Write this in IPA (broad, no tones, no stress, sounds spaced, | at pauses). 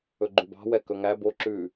ɵ ɡ͡ǃ ʉ b ɑ̤ w ɛ k ɵ ŋ æ b o ǁ ʉː